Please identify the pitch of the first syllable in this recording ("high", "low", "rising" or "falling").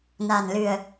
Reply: low